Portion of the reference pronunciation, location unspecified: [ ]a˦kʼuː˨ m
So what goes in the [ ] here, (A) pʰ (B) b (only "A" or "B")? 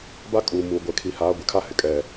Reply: B